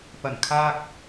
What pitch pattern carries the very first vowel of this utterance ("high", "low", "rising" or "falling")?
low